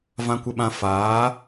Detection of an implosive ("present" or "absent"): present